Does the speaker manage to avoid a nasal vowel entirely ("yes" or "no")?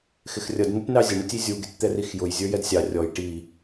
yes